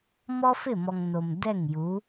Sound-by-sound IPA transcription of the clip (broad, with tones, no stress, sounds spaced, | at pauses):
m ɔ˦ f ɪ˦˨ m ɔ˨ ŋ n o˨ m d ɛ˦˨ ŋ j u˨˦